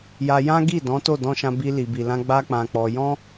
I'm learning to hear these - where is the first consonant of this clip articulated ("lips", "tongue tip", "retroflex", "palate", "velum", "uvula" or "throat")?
palate